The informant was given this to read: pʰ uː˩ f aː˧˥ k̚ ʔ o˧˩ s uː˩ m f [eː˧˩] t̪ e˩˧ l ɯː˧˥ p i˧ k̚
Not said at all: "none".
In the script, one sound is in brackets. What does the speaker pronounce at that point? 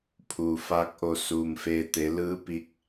eː˧˩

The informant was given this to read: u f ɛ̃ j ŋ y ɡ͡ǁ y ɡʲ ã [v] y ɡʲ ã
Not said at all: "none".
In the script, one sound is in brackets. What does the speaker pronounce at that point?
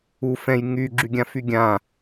f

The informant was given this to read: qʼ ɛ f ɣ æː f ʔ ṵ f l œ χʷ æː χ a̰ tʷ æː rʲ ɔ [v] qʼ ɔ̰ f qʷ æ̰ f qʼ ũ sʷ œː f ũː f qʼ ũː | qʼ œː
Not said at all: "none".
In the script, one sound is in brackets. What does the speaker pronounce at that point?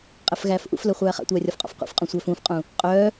f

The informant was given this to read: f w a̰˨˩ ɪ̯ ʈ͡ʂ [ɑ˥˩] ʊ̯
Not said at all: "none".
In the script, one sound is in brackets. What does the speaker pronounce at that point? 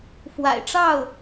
ɑ˥˩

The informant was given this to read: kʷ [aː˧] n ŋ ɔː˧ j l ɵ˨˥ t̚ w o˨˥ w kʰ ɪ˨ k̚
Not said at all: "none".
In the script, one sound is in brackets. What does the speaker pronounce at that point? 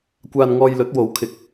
aː˧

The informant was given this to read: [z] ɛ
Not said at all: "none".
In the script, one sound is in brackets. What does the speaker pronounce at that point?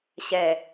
ɕ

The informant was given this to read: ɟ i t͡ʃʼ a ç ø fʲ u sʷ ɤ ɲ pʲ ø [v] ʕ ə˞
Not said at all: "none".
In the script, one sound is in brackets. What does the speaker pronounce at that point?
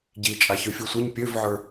v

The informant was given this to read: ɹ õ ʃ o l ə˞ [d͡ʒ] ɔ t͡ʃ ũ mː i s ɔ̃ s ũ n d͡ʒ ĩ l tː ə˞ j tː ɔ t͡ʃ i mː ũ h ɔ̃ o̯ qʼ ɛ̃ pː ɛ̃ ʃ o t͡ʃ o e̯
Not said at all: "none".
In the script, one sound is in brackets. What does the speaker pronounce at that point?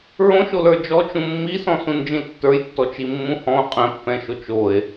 d͡ʒ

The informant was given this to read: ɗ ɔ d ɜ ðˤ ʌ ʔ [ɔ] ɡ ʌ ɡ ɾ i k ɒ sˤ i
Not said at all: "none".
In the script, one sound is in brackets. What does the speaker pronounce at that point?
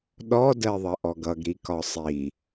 ɔ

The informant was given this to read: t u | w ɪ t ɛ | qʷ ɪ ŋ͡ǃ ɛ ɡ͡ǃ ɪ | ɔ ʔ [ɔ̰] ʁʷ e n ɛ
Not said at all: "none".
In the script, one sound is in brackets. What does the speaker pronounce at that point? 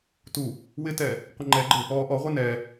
ɔ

